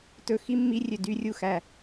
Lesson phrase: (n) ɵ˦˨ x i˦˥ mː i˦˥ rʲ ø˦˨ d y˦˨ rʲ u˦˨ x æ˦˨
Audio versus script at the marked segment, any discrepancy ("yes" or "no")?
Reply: yes